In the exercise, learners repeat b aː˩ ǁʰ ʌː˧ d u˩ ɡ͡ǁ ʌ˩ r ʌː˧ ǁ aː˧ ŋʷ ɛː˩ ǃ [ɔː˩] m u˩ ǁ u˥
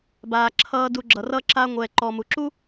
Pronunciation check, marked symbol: correct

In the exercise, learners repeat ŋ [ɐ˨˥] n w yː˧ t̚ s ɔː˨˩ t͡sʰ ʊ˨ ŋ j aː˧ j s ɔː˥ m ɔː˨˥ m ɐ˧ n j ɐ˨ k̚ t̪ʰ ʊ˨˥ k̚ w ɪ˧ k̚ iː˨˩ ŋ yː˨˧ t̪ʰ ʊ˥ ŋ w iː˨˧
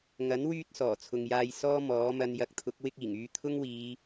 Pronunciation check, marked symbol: correct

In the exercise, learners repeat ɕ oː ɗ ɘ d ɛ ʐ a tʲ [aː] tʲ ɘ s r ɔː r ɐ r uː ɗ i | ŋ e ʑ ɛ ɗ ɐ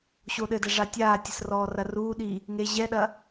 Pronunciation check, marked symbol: correct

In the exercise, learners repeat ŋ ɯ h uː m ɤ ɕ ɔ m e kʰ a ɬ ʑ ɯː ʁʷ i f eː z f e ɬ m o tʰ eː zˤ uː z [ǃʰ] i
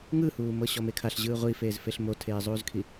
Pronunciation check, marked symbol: incorrect: kʰ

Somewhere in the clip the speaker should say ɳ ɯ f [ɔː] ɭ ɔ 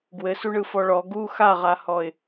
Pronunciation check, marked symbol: incorrect: ɔ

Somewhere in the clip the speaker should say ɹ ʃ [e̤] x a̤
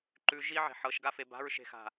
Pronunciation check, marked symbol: correct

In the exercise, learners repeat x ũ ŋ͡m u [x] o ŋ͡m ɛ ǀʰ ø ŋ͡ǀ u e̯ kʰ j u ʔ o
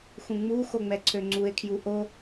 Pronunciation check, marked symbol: correct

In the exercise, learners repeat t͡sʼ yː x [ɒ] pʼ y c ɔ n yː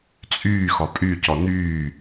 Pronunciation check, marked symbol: correct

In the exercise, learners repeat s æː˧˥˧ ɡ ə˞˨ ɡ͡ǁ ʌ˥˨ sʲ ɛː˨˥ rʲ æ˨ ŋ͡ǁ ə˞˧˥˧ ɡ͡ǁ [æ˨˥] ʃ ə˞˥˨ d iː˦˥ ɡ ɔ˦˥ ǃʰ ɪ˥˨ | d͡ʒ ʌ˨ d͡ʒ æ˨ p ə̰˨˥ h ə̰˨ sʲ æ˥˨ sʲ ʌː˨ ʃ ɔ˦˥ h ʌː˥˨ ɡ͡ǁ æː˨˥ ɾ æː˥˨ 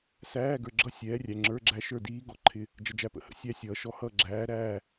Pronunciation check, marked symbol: incorrect: æ˦˥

